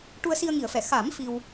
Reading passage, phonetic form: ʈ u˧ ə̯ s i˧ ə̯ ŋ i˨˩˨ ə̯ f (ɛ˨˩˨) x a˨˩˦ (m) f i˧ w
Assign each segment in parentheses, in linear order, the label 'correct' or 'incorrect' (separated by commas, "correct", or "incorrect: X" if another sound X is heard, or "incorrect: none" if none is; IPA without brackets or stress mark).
correct, correct